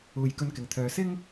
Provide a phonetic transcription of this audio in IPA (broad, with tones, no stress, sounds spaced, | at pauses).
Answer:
uː˨ j k ɵ˧ n k ɪ˨˩ ŋ t̪ʰ œː˨ s ɪ˥ ŋ